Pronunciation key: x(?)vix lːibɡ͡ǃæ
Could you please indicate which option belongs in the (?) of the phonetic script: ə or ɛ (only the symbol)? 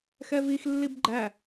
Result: ɛ